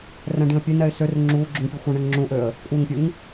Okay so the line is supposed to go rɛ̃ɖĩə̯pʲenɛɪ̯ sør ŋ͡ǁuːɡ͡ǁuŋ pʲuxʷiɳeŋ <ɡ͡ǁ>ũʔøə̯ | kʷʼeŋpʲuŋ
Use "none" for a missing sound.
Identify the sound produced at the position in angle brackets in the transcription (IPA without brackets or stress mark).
ŋ͡ǁ